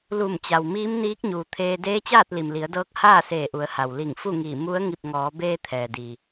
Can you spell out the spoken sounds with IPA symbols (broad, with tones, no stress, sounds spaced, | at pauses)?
l u˧˩ m t͡ɕ a˩ w m iː˧˥ m n iː˧˥ k̚ ɲ uː˩ t̪ʰ eː˧ d eː˧˥ t͡ɕ aː˥˨ t̚ l i˩ m l i˩˧ ə̯ d ɤː˧˥ k̚ h aː˥˨ s eː˧˩ ʔ u˩˧ ə̯ h a˩ w l i˧˩ ŋ f u˥˨ ŋ iː˧˩ m u˧˥ ə̯ ŋ i˧˩ p̚ ŋ ɔː˩˧ b eː˧ t̪ʰ ɛː˩ d i˩